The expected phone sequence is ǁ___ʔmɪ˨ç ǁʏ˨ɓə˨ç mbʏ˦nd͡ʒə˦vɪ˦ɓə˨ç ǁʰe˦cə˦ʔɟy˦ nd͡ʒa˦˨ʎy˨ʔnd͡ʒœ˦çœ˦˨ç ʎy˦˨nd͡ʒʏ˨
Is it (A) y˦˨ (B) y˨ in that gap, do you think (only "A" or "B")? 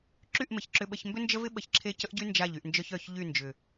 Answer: A